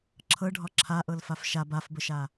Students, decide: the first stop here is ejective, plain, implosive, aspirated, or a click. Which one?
click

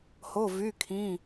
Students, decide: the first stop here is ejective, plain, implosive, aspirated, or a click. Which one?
aspirated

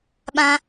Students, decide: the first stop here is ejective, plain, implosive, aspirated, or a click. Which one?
implosive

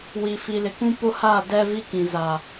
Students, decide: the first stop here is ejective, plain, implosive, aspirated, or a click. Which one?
plain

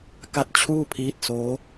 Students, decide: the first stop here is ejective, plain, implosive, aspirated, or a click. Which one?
plain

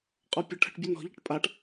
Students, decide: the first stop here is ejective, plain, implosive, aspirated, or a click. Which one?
ejective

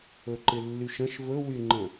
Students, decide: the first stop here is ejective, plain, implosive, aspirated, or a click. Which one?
click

